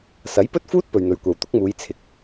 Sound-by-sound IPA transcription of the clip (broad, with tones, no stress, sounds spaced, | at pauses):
s ɐ˨˥ j p ɵ˥ t̚ f uː˥ t̚ p ɵ˨ ɥ n̪ ɵ˨ ɥ kʷ ɐ˨ w t̪ ʊ˨˥ k̚ m uː˨˧ j t͡sʰ ɪ˨˥ k̚